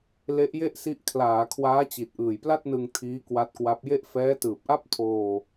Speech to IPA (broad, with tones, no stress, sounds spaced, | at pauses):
l e˦˥ ʔ j e˥˩ ʔ s i˦˥ ʔ kʰ l aː˩˦ kʰ w aː˦˥ t͡ɕ i˨˩ t̚ ʔ ɯː˨˩ j p l a˥˩ t̚ n ɯ˧ ŋ tʰ iː˦˥ k w a˦˥ t̚ k w a˦˥ p̚ j e˥˩ ʔ f ɛː˦˥ t ɯː˨˩ p̚ ʔ a˥˩ p̚ tʰ oː˧